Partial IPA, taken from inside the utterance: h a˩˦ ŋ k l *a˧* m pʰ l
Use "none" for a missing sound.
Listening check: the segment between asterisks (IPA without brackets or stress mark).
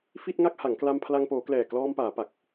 a˧